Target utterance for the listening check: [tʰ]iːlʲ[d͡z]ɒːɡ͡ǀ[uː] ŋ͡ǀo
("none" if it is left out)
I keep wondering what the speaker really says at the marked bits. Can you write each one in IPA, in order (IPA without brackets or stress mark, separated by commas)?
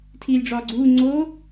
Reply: tʰ, ɖ͡ʐ, uː